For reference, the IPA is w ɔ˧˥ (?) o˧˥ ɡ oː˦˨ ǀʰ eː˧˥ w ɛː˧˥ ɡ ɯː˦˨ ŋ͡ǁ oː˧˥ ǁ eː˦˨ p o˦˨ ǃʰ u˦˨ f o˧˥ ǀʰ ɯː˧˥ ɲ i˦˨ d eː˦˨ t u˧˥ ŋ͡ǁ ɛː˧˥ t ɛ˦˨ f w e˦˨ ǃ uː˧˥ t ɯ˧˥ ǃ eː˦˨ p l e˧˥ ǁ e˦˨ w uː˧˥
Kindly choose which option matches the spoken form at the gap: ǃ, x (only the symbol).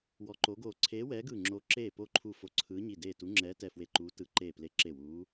ǃ